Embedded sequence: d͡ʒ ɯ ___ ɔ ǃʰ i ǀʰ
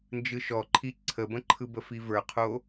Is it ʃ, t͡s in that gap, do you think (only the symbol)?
ʃ